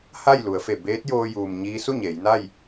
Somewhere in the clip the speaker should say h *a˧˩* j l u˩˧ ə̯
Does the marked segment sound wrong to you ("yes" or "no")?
yes